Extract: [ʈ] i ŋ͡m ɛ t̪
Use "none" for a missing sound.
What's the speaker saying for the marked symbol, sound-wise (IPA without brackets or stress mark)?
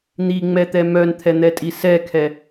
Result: n̪